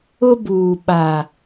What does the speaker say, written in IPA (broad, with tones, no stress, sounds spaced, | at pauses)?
ʊ˦ b uː˨ ɓ a˨